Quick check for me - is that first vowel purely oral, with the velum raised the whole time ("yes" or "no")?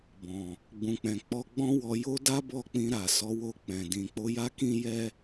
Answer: no